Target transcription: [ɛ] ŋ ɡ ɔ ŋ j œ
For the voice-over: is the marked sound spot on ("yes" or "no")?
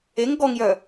no